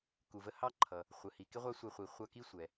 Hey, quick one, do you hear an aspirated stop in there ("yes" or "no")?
yes